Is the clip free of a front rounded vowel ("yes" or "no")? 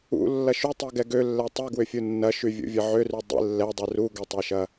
no